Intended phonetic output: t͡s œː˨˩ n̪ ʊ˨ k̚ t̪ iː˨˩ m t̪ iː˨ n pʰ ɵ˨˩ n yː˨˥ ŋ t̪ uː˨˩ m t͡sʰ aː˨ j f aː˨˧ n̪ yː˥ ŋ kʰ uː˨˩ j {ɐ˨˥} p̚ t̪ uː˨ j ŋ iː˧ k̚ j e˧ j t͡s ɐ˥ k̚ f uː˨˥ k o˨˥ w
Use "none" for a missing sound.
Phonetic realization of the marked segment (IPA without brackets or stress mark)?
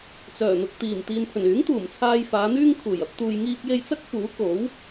ɐ˨˥